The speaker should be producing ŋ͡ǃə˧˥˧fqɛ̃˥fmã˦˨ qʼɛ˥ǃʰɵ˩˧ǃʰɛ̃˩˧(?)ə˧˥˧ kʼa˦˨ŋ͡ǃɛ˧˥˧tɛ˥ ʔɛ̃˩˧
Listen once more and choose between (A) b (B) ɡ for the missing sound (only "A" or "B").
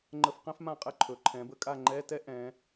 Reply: A